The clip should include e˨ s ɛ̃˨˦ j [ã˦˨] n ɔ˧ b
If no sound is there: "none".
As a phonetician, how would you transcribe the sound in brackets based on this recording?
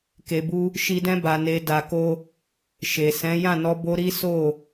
ã˦˨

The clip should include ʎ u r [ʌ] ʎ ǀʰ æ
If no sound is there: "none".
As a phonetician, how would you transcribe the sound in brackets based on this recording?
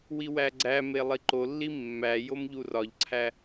ɒ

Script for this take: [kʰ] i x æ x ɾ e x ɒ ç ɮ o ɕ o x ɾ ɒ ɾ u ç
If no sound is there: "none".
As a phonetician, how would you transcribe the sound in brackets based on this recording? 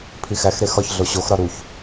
pʰ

